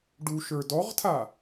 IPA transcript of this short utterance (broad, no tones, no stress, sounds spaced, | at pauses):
ɖ u ʃ ə˞ d ɔ ʁ tʰ a